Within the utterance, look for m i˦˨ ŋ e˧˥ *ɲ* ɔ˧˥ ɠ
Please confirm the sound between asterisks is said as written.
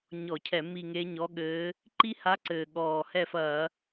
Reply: yes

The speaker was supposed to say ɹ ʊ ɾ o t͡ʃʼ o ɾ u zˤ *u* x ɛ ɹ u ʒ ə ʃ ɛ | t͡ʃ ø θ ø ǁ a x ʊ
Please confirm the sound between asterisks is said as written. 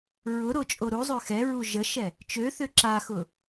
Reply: no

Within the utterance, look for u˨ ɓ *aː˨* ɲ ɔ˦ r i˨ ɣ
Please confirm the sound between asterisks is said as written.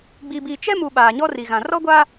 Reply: yes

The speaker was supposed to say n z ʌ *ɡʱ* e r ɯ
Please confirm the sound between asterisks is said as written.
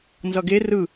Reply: no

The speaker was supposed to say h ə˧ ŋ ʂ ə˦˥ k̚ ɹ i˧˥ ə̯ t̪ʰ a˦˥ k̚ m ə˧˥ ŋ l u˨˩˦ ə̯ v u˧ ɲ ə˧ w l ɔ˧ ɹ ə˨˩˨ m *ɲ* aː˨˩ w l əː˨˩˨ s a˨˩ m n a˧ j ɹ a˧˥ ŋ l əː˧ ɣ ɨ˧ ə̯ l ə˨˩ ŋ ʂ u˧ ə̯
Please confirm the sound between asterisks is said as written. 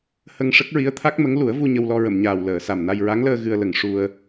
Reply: yes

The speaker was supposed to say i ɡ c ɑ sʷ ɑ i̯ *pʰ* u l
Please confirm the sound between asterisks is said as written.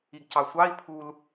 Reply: yes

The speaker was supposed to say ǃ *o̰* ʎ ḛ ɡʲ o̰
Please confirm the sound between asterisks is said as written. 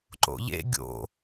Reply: yes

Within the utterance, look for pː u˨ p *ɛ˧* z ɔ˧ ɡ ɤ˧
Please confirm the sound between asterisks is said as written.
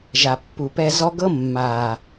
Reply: yes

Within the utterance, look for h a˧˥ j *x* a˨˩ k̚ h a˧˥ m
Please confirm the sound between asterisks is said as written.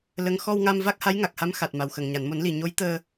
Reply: no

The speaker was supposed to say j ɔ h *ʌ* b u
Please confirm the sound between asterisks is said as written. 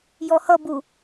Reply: yes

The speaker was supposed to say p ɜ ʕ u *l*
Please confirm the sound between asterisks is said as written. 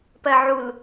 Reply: yes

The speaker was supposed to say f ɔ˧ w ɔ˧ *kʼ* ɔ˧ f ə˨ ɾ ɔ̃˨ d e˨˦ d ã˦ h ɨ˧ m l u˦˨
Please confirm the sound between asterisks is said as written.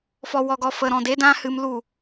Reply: no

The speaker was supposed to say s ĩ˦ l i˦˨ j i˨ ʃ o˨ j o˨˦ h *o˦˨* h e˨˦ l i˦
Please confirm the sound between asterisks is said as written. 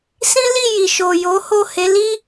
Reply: yes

